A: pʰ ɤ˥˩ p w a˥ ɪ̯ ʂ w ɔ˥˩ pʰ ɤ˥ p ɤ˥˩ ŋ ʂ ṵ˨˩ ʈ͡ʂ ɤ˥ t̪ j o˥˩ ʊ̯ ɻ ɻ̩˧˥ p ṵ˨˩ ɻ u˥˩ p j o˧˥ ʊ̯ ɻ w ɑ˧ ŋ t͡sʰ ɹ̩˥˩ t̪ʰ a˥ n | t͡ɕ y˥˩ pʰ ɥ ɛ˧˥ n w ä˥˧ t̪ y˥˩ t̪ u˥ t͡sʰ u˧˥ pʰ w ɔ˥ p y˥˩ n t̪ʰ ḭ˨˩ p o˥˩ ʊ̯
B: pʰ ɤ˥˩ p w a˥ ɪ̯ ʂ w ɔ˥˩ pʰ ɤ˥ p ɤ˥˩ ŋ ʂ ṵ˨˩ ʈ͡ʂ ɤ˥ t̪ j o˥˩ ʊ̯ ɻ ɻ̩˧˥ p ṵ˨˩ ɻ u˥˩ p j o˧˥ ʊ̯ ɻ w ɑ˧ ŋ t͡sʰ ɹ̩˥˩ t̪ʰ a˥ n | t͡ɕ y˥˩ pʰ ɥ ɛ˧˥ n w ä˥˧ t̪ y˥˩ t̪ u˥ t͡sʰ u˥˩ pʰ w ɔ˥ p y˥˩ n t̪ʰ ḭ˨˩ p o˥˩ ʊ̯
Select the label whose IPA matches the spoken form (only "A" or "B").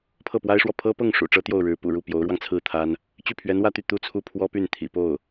B